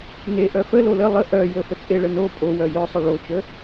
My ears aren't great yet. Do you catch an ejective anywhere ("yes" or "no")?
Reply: yes